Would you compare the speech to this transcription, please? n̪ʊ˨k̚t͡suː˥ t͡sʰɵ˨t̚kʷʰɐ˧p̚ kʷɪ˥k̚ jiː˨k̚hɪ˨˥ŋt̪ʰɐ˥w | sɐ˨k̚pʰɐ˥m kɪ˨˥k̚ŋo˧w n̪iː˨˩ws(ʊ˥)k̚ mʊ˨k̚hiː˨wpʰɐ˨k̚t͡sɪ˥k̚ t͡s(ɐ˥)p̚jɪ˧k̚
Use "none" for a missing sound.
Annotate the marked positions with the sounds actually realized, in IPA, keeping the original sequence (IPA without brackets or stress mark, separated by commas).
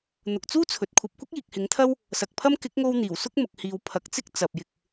ʊ˥, ɐ˨